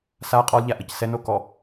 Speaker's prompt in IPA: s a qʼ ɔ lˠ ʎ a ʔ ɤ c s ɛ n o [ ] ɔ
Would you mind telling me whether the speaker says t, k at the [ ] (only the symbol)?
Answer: k